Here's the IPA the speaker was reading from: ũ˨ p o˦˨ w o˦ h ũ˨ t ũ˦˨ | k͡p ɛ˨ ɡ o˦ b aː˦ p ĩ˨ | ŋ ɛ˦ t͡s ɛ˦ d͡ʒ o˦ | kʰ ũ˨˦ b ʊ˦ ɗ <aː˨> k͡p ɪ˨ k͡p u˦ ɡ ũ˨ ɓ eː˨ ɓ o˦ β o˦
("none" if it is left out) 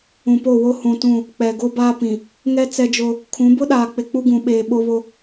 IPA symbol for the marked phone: aː˨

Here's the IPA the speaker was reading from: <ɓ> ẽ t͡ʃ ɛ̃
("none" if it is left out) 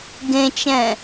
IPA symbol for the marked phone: ɡ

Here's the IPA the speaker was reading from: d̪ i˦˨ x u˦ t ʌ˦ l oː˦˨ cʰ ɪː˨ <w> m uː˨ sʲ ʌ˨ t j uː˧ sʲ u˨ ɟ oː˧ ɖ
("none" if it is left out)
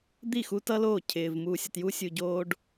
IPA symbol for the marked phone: v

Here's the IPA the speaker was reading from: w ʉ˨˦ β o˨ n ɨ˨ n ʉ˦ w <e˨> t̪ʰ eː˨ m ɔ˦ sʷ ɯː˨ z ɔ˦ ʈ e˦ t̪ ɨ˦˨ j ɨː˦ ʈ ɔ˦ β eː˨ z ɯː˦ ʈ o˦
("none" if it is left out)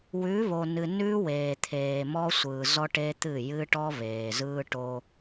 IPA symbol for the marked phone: eː˨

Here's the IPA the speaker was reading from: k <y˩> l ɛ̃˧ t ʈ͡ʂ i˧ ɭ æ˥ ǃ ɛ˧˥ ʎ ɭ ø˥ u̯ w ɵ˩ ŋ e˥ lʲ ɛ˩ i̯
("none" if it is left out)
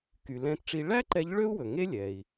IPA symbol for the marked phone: y˩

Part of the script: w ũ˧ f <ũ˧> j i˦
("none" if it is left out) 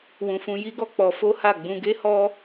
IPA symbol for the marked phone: ũ˧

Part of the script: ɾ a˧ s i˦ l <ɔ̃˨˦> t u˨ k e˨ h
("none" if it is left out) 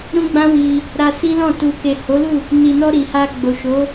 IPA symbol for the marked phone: ɔ̃˦˨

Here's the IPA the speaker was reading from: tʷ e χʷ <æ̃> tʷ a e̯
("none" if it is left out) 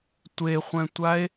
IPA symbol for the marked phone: ɛ̃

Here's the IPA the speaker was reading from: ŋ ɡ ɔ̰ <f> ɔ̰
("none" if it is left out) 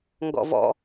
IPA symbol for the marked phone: v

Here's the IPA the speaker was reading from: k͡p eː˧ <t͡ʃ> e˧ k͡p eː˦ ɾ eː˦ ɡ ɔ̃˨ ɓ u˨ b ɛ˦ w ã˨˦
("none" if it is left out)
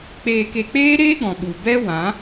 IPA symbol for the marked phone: k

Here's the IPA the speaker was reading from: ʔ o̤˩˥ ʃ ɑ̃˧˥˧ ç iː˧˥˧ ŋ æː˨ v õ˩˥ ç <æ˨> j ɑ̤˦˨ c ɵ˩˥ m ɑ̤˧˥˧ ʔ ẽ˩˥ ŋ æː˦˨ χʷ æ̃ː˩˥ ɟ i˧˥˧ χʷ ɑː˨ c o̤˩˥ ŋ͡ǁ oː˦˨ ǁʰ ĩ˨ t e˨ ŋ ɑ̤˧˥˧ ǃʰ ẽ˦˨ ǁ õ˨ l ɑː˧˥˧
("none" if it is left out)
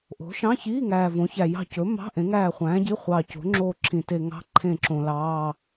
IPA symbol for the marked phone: æ˨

